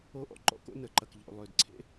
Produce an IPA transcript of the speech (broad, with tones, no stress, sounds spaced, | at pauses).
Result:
o˥ ʔ ɔ̰˥ ǃ ɔ̰˥ k o̰˥ n ə˩ ǃ ɐ˩ k ʎ o̰˩ lˠ ʏː˩ d ǀʰ ḛ˥